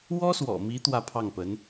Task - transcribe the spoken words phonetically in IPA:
w ɔ˥ s w ɔ̰˨˩ m i˧˥ t̪ w ä˥˧ pʰ ɑ˥˩ ŋ p ə˧˥ n

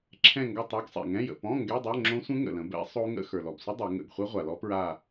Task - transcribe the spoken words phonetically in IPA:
ǁʰ ɛ̃˧˩ ŋ ɡ a˧˩ tˤ ɔ˦˥ ɡ sˤ ɛ̰˩ ŋ ɛ̃˧˥˧ j ə̰˧˩ p ɔ̃˧˥˧ ŋ ɡ ɛ˧˥˧ dˤ o˧˥˧ ŋ͡ǁ õ˦˥ sʷ ə̃˦˥ ŋ ə̰˩ l ə̃˩˧ b ɛ̰˦˥ sˤ o˦˥ ŋ ə̰˧˥˧ x ə˞˩ l ɔ˩ b sʷ ə˦˥ dˤ ɛ˩˧ ŋ ə̰˧˩ ɡ χʷ ɛ˦˥ ʁʷ a˩ l ɔ˦˥ p ɹ a˧˩

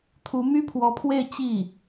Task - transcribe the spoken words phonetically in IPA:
t̪ʰ u˧˥ m y˥ pʰ w ɔ˧˥ pʰ w e˥˧ ɪ̯ t͡ɕ i˥˩

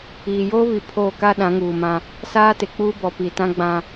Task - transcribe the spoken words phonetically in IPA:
iː˨ j oː˦ β i˨˦ pʰ oː˦˨ k a˦ ɗ ã˨˦ ŋ uː˨ m ã˦ | s aː˦ t ɪ˨ k͡p uː˦ b ɔ˨ p i˨ t ã˦ ɡ͡b ã˦

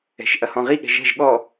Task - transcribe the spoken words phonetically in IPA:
ɛ̤ ʃ ʔ ɐ h ɔ̃ ʁ i ɠ ɛ̤ ʒ ɛ̤ ʒ ɠ ɔ

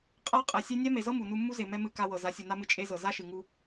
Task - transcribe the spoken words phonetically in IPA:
qʼ a˦ qʼ ɛ˨ sʲ e˦ nʲ a˦ m e˨ z ɤ˦ m u˨ n u˧ mː u˦ z e˨ m ɛ˦ m ɨ˦˨ k a˧ w ɤ˨ z a˨˦ sʲ u˨ n a˦ m ɨ˧ t͡ʃʼ e˦ z ɤ˨ z a˦ ʃ ɨ˨ ŋ u˧

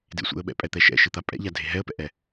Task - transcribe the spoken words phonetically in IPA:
d ḛ sʷ ḛ ə̯ ɓ ɛ̰ pʼ ɛ t̪ ɛ ʃ ɛ̰ ʃ ɨ t̪ a pʼ ɛ̰ ʎ a dʱ e ɦ ɛ ə̯ p ɛ̰ ʔ ɛ

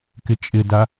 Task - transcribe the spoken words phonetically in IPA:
k ɪ t͡ʃʼ ɪ d a

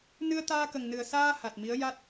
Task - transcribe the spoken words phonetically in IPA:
n ɨ˧ ə̯ t̪ aː˧ k ə˨˩ ŋ n ɨ˨˩ ə̯ s aː˧ h a˨˩ t̚ m i˧˥ ə̯ j a˦˥ t̚

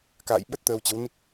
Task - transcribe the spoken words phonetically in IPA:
k a̰ː˧˨ j ɓ ə˦˥ t̚ t̪ əː˧ w t͡ɕ ə˨˦ w n i˦˥ k̚

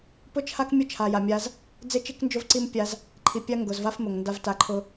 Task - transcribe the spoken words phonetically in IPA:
p ʊ˦ t͡ʃʰ a˦ k mʲ ʊ˦ t͡ʃʰ a˨ j a˨ mʲ a˦ z | d͡z e˦ t͡ʃ i˦ k n d͡ʒ ʊ˦ v ǀ i˦ m pʲ a˦ z | ǃʰ i˨ pʲ a˦ ŋ ɡ ʊ˨ z v a˦ f m ʊ˨ ŋ n d a˦ v t a˦ ǃʰ ʊ˦

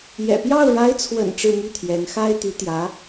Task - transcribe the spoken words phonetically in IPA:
j ɛ̰˨˩ p j ɑ˥˩ ʊ̯ ɻ a˧˥ ɪ̯ t͡sʰ w ə̰˨˩ n ʈ͡ʂ ɻ̩˥˧ m y˥˩ t̪ʰ j ɛ˧˥ n x a˥ ɪ̯ t̪ y˧˥ t̪ j ä˧˥

